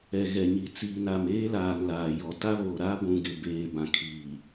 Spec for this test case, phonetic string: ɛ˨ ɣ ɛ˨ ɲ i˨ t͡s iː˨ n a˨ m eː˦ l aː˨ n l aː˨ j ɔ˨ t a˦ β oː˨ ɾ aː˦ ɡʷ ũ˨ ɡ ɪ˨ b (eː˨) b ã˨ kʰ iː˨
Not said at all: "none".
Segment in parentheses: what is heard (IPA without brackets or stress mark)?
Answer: eː˨